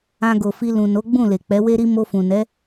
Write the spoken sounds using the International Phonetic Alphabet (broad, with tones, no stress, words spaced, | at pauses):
ã˧ɡo˨fi˧ lũ˨no˨˦ ɡ͡bũ˦˨le˨ k͡pɛ˨˦we˦ɾi˦ mo˧fũ˨nɛ˨˦